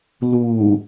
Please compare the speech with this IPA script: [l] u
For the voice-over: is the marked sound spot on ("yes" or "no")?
yes